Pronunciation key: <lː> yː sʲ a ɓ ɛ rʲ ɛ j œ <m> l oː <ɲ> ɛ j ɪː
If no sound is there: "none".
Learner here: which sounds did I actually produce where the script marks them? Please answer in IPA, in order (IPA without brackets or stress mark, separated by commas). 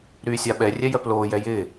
ɾ, p, j